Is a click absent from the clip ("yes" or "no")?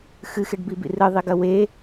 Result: yes